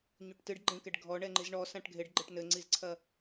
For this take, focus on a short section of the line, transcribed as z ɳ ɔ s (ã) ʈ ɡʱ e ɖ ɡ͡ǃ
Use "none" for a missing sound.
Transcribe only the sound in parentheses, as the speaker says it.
ã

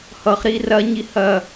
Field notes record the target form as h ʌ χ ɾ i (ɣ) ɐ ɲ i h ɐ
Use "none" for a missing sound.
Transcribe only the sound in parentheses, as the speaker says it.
r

